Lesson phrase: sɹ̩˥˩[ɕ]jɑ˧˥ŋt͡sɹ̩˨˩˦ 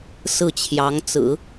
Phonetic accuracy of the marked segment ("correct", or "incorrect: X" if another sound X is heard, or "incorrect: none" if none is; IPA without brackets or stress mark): incorrect: t͡ɕʰ